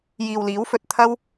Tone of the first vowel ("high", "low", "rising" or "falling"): low